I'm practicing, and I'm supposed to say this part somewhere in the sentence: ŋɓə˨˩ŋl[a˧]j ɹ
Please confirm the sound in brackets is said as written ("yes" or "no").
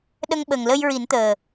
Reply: no